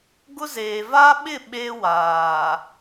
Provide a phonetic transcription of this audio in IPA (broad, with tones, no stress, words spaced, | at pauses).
ɡʊ˦zeː˨ va˦ɓɪ˦˨ ɓe˦waː˨